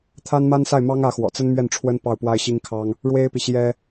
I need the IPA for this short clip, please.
t̪ʰa˥nma˥n sa˥˩ɪ̯mɑ˥ŋä˧˥xwɔ̰˨˩ t͡sə˥nmɥɛ˥˩nʈ͡ʂʰwə˥n pɑ˥˩ʊ̯pwa˥ɪ̯ɕi˥ŋkʰɑ˥ŋ | ɻwe˥ɪ̯pi˨ɕjɛ˥

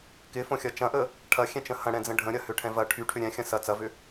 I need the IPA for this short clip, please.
kɪfõxʲɐ t͡ʃɐ̃ʔə | ʈʰɐxʲɛ̃t͡ʃə̃ hɐ̃ɽɛ̃d͡zə̃ ɖʱə̃ɾʲɐhʏʈʰɛ̃ vɐ ʈʰyʈʰʏ ɾʲɛ̃xʲɐ̃ sɐ t͡sɐvʏ

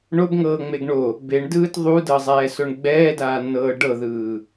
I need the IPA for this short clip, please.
ɳobŋɤː ŋ͡meɡɳo | beɳdɯːt ðˤudɤzˤɛː soɳɡ͡bɛːdaːnːɤː ɖɤðɯː

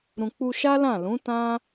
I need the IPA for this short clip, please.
ɾũ˧ k͡pu˧ʃa˦ lã˦˨lũ˨˦tã˦

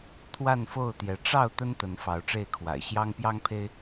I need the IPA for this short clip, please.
t̪ʰwa˥˨nfo˥˨ʊ̯t̪jɛ˨˦ ʈ͡ʂɑ˥˨ʊ̯ t̪ə˦nt̪ə˨˦n fɑ˨˦ʊ̯ʈ͡ʂe˥˨ɪ̯kʰwa̰˨˩ɪ̯ ɕjɑ˦ŋ pjɑ˦ŋpʰe˦ɪ̯

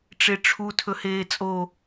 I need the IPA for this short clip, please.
ʈ͡ʂeʈ͡ʂʰu tʰɵheːt͡sʼo

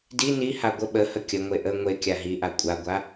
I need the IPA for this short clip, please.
di niha ɡʷə ɓəhə kʲəŋʷe ʔə ŋʷe kʲaɦiʔa kʷʼaɡʷa

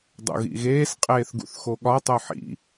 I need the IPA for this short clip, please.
dˤṵɣḭɣeːs qʼeːθɡṵθxoɠɒ tˤoħḭ

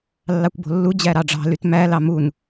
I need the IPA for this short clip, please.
lːɑkʷbo̤lːu d͡ʑæɾɑɖ͡ʐɑ̤ lytmæ lɑmun

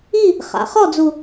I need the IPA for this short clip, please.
i˥˧ | χa̰˩˧χɔ˥˧d͡zu˧

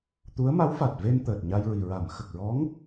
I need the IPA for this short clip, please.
t̪u˧˥ə̯ma˧˥wfa˨˩t̚ve˧n t̪əː˨˩t̚ɲa˧jɹi˨˩ ɹa˨˩˨mxə˨˩k̚ɹɔ˧˥ŋ

